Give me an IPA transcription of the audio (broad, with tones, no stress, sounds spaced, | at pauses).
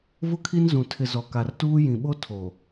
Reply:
v ʊ˦ kʰ i˦ n z ũ˨ tʰ ɪ˨ z ɔ˨ k a˨ r t uː˦ j ĩ˨ ɓ o˦ tʰ o˨